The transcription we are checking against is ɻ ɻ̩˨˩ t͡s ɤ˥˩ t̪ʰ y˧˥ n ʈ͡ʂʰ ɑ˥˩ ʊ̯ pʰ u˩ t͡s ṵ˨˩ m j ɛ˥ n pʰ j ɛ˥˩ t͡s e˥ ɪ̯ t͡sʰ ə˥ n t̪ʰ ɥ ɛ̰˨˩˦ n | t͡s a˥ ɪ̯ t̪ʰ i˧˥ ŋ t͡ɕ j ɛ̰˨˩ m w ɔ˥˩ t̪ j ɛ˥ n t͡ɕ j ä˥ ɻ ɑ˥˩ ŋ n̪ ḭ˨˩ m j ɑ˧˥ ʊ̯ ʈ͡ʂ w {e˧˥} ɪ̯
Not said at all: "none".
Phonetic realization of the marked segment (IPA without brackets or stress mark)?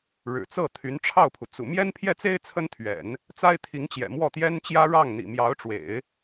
ḛ˨˩˦